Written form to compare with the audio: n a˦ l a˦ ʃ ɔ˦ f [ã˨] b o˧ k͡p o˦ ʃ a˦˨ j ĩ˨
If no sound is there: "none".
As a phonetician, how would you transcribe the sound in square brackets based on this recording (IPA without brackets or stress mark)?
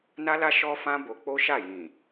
ã˦